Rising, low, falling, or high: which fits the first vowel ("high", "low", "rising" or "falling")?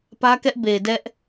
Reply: high